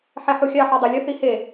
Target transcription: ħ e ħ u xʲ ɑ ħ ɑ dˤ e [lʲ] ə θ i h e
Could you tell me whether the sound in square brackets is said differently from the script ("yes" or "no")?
no